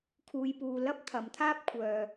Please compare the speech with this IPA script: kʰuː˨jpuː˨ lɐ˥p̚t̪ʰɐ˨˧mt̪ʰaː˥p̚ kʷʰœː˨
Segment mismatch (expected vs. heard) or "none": none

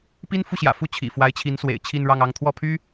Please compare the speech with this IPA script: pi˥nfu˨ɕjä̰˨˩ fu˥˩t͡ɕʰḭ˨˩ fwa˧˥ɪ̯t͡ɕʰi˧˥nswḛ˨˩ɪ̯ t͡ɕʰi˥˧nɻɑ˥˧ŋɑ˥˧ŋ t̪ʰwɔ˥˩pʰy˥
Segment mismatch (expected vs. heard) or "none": none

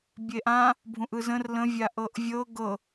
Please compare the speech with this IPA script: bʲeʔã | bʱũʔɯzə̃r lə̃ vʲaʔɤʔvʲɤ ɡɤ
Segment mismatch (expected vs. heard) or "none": none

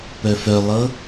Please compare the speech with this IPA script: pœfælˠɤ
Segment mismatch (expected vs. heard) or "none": æ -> œ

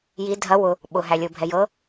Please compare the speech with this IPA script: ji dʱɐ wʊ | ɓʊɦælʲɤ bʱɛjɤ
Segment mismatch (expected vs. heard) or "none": none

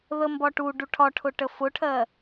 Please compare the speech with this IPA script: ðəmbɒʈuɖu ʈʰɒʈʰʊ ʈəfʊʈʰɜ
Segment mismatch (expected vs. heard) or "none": none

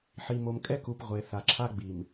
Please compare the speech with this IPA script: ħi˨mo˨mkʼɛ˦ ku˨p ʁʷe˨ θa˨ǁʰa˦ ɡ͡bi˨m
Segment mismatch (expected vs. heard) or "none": none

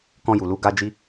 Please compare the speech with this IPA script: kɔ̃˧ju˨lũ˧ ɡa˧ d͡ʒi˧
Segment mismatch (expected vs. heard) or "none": ũ˧ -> u˧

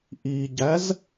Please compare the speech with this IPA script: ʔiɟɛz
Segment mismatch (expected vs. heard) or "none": ɛ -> æ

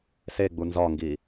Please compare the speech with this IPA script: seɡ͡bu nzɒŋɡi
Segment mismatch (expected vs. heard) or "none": none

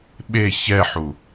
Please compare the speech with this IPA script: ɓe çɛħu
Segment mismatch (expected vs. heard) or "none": none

